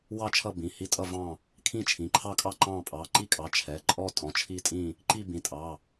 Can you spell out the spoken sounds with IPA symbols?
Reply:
w ɑ˥˨ t͡ʃʰ ʌ˥˨ b ĩ˩˧˩ h i˥˨ tʼ ʌ˥˨ v ɑ̃˥˨ | kʰ ĩ˥˨ t͡ʃʰ ĩ˩˧˩ ǃʰ ɑ˥˨ kʼ ɑ˥˨ ǃ ɑ̃˥˨ pʼ ɑ˩˧˩ ǃ i˥˨ kʼ ɑ˩˧˩ t͡ʃʰ ɛ˩˧˩ ǃʼ ɔ˥˨ tʼ ɔ̃˩˧˩ t͡ʃʰ i˥˨ tʼ ĩ˥˨ | ǃ i˥˨ b ĩ˩˧˩ tʼ ɑ˩˧˩

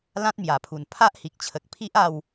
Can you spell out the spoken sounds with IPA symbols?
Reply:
l ã˦ t̚ m j a˨˩ pʰ u˨˩ n pʰ a˦ ʔ h i˨ k̚ t͡ɕʰ ə˨ k̚ pʰ i˦ ʔ a˥˧ w

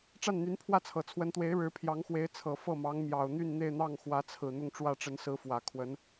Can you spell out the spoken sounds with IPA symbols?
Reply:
ʈ͡ʂ a˥˩ n n̪ y˧˥ n pʰ w ä˥˩ t͡sʰ ɤ˨˩ t͡sʰ w ə˧˥ n t̪ w e˧˥ ɪ̯ ɻ ɻ̩˧˥ pʰ j ɑ˧˥ ŋ x w e˧˥ ɪ̯ t͡sʰ ɤ˨˩ f ɤ˥˩ m ɑ˧˥ ŋ m j ɑ˨˩ ʊ̯ n̪ y˥˧ n n̪ e˥˧ ɪ̯ n̪ ɑ˥˩ ŋ x w ä˧˥ t͡sʰ ɹ̩˨˩ n̪ ʊ˥˧ ŋ ʈ͡ʂ w ä˥˩ ʈ͡ʂ ə˧˥ n s ɹ̩˧˥ f w ä˨˩ kʰ w ə˧˥ n

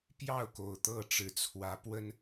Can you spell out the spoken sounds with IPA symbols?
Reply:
p j ɑ˥˨ ʊ̯ k o˨˩ ʊ̯ t̪ ɤ˥˨ ʈ͡ʂ ɻ̩˨˩ t͡sʰ w ä˨˦ p w ə˦ n

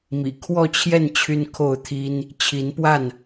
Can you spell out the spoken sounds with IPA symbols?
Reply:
m ḭ˨˩ kʰ w ɔ˥˨ t͡ɕʰ j ɛ˥˨ n t͡ɕʰ y˦ n kʰ o˥˨ ʊ̯ t̪ʰ i˦ n | t͡ɕʰ i˨˦ n p w a˥˨ n

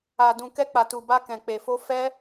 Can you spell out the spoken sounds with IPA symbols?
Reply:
a˧ d ũ˧ k ɛ˦ k͡p a˧ t u˧ b a˦ k ɛ̃˧ k͡p e˧ f o˦ f ɛ˦

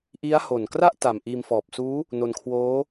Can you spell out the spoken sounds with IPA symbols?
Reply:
ʔ i˦˥ a̯ h o˨˩ n k r a˥˩ ʔ t a˨˩ m ʔ iː˧ m f ɔː˨˩ p̚ s uː˦˥ | n o˧ n kʰ w oː˦˥

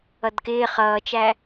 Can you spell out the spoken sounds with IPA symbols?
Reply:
ʌ d k ɪː χ ʌː t͡ʃ æ

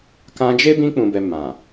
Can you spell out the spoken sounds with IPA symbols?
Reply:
k ã˧ d͡ʒ e˦ b ĩ˧ k͡p ũ˨ b ɛ˨ m ã˨

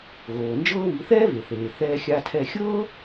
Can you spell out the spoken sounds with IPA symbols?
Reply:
ɣ oː˩ n d͡ʒ ɤː˥ β i˩˥ θ ɛː˥ v e˩ θ eː˩ θ ɛː˧ xʲ a˧ tʰ ɛ˧ xʲ ɤː˥

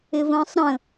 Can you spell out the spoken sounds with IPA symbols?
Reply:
ɪ v ə̃ː sˤ ɾ ə̃

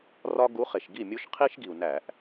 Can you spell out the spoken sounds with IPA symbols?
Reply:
r ɒ˦ ɡ u˨˦ χ e˩ ʃ ɡ i˥˩ mʲ u˦ ʃ qʰ i˦ ʃ ɡ i˩ u̯ n æ˧˩˧ ʔ

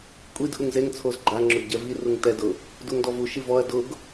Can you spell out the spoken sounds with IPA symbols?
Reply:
kʷʼ i d ʔ u ŋ z e ŋ t͡sʰ o z ɡ͡ǃ a ŋ͡ǁ ʊ ɡ ɟ ɛ v i r u ŋ t ɛ d ʊ | d u ŋ d ɔ v u ʃ i v ɔ ɐ̯ d ʊ ɡ

